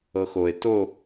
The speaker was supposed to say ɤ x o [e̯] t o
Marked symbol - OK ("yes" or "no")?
yes